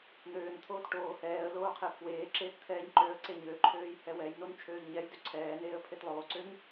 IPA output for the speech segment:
n̪ øː n t̪ʰ oː t ʈ oː h ɛː ə̯ l oː qʰ e pʰ w eː ǁ eː t t̪ʰ ɛː ɲ ǃ ø ə̯ ǀ e ɲ ø ǃʰ øː j h ɛ w ɛ j n o n t͡ʃʰ øː ʎ ɲ ɛ j d ø ǀʰ ɛː n eː ə̯ pʰ e t lˠ oː ǀ ø ɲ

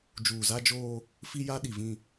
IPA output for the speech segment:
d͡ʒ uː˨ z a˦ d͡ʒ oː˦ | f i˦ j a˦ ɗ i˨ v ĩ˦˨

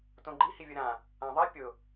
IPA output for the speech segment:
t õ ɡ͡ǃ i h i vʲ ə ɾ ã | ã ðˤ i pʲ ʊ

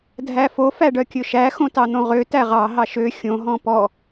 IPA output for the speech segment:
dʱ æ f o f æ ɖ œ kʲ ɵ ʃ æ x õ t ɑ n̪ õ ʁ ø t æ ʁ ɑ ɦ ɑ ʃ ø xʲ õ ɦ ɔ̃ p ɔ

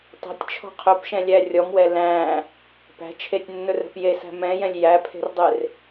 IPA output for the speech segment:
tˤ ɛ̤ tʲ t͡ʃʰ ɔ̤ qʰ ɵ p ʃ ɛ̃ lʲ æ rʲ ɔ m w ɛ l æ̃ | p æ̤ t͡ʃʰ e tʲ nː ɵ r ɛ̤ p j e s æ̤ m ɛ̃ j ɛ̃ lʲ j æ pʰ e̤ r dˤ e r

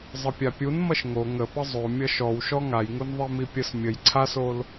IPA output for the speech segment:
zˤ ʌ pʲ a pʲ u n m ʌ ʃ ŋ o ŋ ə p ə zˤ o mʲ ʌ ʃ ɔ w ʃ ɔ ŋ a j ŋ u n ðˤ i m i pʲ ə s mʲ ə j ǀʰ a s o l

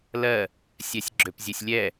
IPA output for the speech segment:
l ɜ | sʲ ɛ sʲ ɡ͡ǁ ø p zʲ ø sʲ lʲ ɛ

